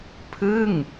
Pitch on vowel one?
falling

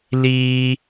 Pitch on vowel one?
high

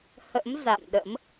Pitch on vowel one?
rising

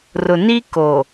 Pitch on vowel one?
low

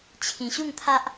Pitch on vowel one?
low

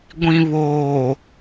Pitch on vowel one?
low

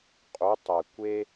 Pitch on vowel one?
rising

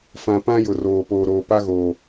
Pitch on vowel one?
low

